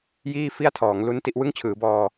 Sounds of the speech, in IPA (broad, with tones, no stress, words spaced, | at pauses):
jiː˥˩fi˥˩a̯tʰɔː˩˦ŋ lu˦˥n ti˦˥ʔwɯ˥˩ŋt͡ɕʰɯː˩˦bɔː˧